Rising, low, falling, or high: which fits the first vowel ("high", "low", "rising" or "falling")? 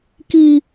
high